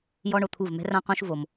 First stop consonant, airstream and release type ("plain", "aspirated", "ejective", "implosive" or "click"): aspirated